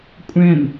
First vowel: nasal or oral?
nasal